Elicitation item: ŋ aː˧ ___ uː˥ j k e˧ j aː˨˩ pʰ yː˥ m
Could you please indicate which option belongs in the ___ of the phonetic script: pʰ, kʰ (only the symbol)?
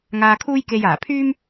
kʰ